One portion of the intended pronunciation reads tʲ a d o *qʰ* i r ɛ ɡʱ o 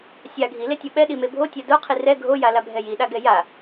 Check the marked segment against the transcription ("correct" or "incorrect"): correct